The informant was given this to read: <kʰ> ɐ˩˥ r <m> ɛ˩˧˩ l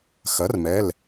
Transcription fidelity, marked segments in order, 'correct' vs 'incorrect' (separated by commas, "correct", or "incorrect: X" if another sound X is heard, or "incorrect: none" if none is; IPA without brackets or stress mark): incorrect: x, correct